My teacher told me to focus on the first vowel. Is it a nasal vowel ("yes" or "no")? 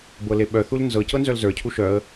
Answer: no